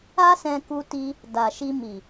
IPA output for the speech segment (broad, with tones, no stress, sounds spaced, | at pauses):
a˦ s ɛ̃˧ k u˧ t i˧ | d a˨ ʃ i˧ m i˨